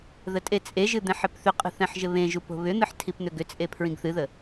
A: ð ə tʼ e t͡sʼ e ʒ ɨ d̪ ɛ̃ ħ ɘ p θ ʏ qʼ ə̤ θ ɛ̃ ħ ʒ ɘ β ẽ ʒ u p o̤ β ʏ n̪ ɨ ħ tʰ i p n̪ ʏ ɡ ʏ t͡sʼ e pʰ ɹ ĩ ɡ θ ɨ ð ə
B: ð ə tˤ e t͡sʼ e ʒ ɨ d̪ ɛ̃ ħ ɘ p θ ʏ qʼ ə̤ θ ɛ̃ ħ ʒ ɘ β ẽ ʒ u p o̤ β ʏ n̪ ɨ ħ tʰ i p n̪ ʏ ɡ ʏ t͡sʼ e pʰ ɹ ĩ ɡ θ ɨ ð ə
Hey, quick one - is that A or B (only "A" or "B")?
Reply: A